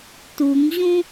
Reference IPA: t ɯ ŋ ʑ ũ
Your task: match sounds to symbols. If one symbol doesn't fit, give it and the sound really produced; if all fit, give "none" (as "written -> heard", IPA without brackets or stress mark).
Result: ɯ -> u